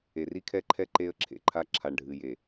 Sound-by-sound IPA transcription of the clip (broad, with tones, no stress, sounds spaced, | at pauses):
e˨ r i˦ kʰ ɛ˦ ǃʰ ɛ˦ ǃ e˦ ə̯ ǁʰ ḛ˨ ǃʰ a˦ ǁʰ a˨ ɳ ɖʱ ɨ˨ j e˨